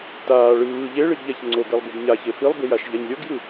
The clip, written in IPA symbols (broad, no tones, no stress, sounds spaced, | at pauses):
t aː ɭ ɯː ʎ e ɭ i ɡ ʎ a ç ŋ͡ǀ o ɡ ɛ lˠ b i b ɲ a ç e f i lˠ b i j a ʃ ʎ a ɲ lʲ o ɡ j ɯ